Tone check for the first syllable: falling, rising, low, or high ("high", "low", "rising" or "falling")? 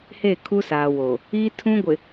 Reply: falling